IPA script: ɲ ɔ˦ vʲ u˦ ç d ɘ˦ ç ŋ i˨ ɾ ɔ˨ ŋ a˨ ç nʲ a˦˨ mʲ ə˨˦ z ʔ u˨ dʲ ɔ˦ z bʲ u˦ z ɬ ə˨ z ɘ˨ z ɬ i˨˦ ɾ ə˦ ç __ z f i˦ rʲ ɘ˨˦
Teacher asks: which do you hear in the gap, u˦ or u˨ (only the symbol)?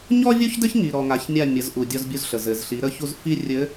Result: u˦